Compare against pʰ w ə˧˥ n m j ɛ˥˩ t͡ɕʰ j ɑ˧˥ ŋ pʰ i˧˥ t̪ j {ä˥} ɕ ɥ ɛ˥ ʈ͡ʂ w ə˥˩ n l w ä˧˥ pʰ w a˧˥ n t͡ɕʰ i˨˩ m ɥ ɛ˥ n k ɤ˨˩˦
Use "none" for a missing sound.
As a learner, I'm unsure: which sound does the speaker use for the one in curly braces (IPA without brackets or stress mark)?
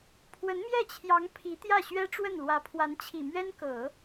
ä˥˩